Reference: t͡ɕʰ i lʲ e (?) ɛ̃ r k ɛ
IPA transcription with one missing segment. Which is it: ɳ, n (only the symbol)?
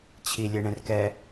ɳ